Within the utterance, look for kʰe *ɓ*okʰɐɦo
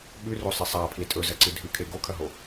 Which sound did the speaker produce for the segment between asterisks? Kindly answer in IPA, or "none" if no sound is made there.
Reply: ɡ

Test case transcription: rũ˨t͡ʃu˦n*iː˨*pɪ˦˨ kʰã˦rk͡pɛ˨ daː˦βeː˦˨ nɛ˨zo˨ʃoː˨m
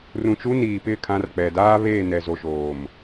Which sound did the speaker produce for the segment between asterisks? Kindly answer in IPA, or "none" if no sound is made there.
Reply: iː˨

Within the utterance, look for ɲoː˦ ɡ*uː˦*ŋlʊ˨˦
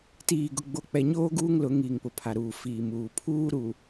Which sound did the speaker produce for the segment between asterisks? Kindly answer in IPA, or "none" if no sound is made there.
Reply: uː˦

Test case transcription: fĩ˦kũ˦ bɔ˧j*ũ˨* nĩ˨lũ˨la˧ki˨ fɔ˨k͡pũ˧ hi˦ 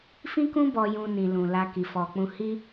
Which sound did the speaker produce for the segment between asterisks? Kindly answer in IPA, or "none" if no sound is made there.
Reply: ũ˧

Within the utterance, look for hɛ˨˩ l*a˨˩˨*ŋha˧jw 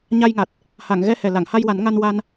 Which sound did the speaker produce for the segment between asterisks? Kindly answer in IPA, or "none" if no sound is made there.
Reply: a˨˩˨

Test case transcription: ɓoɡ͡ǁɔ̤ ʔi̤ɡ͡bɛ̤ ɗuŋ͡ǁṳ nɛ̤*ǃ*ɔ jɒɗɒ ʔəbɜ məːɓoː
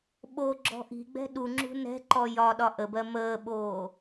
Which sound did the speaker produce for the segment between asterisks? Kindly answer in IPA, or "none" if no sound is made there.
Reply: ǃ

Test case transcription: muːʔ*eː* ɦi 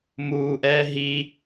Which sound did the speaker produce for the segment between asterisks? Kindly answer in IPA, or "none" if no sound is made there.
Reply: ɛː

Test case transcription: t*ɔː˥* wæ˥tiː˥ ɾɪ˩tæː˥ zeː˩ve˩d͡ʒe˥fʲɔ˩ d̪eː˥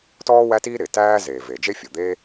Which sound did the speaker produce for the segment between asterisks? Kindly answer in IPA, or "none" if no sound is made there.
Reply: ɔː˥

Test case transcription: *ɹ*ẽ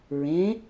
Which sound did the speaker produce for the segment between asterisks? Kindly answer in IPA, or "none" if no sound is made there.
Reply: ɹ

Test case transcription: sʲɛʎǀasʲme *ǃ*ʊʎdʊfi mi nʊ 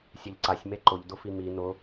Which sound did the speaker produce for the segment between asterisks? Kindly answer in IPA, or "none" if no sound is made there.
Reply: ǃ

